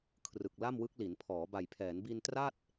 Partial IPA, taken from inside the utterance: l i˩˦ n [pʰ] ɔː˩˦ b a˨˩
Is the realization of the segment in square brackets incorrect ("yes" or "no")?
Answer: no